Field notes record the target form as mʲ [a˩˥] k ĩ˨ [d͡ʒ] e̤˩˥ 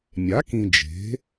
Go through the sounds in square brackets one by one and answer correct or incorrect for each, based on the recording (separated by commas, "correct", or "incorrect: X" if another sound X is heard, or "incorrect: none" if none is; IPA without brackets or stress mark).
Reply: correct, correct